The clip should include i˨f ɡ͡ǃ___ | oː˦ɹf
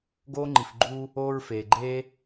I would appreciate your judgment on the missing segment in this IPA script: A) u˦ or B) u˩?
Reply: A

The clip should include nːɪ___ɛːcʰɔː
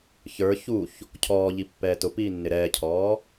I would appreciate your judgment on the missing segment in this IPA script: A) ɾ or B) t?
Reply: A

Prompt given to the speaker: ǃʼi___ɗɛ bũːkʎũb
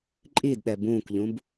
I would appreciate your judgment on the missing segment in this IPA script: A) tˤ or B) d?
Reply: B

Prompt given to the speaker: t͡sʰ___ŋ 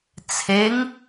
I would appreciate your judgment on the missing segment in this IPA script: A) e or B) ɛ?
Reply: A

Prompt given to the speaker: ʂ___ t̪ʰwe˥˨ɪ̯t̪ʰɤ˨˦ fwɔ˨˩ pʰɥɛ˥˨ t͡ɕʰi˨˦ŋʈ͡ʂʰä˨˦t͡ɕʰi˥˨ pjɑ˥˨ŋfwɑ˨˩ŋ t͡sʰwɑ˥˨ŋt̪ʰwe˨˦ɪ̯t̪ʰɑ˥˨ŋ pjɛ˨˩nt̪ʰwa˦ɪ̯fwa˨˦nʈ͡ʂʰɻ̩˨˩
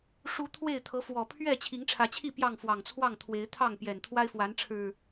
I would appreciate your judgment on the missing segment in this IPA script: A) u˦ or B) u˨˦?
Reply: B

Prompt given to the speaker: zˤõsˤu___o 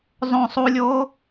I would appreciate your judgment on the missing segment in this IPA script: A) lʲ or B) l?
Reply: A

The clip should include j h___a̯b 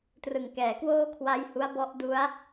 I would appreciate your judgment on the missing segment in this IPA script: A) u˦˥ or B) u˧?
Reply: A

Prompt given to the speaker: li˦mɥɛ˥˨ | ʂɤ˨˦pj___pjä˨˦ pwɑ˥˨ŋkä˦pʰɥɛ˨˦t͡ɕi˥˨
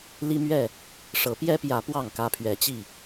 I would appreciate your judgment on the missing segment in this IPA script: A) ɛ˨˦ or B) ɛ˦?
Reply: B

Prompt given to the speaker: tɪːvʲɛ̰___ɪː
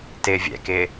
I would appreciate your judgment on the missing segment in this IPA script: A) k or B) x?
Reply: A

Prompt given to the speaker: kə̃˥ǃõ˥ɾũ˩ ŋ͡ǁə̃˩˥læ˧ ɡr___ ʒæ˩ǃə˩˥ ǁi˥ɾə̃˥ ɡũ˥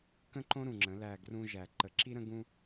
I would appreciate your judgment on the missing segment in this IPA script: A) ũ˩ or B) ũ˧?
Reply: B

